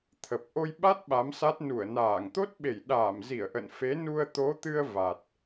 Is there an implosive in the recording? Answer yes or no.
yes